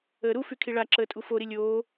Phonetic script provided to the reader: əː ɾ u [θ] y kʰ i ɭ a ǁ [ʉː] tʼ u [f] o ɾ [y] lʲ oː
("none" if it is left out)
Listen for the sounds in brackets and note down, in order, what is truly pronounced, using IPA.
f, əː, f, i

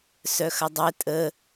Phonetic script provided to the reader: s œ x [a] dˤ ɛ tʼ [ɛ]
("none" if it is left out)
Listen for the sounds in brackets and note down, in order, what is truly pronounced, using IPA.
ɐ, ə

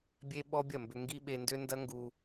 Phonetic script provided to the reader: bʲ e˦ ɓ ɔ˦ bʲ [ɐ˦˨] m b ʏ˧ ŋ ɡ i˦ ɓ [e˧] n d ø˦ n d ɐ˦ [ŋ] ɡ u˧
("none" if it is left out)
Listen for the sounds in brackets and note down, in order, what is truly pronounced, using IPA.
ɐ˦˨, e˧, ŋ

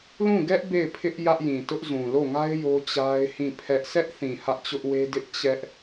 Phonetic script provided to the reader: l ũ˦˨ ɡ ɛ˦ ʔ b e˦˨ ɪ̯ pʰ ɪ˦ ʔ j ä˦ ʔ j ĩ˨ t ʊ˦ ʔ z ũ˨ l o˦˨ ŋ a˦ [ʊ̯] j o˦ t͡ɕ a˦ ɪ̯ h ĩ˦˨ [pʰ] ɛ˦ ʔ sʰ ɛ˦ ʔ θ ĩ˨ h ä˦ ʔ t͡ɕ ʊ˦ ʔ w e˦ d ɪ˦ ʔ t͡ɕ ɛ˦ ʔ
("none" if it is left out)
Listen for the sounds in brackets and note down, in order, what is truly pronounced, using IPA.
ɪ̯, pʰ

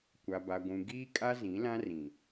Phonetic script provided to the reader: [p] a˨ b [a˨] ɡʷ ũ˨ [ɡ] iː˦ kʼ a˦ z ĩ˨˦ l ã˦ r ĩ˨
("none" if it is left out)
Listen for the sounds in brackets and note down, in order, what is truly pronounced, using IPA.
kʷ, a˨, ɡ

